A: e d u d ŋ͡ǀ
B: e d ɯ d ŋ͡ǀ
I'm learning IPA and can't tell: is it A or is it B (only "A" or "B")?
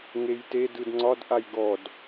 B